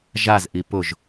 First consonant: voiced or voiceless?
voiced